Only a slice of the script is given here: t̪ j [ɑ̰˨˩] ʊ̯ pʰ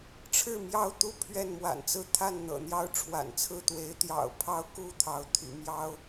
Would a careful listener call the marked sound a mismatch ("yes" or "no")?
no